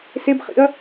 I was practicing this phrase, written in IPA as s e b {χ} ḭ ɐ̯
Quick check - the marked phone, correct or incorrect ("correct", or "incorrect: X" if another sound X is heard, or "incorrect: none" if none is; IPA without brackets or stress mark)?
correct